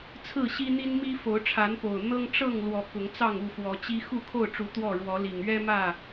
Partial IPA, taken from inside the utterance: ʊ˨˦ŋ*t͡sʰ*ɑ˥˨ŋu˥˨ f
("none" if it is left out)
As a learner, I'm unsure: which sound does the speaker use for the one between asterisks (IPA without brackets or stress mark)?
t͡s